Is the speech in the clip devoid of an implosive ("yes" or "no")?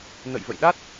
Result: no